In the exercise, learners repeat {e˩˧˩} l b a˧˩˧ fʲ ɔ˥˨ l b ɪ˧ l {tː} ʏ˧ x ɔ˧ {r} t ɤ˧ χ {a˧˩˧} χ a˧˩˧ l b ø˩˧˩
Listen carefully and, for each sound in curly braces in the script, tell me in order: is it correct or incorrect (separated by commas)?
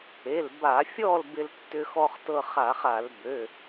correct, correct, incorrect, correct